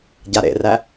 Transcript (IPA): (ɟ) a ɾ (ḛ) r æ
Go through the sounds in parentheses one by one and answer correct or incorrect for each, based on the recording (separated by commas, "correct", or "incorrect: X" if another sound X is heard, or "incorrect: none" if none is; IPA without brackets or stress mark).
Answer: correct, correct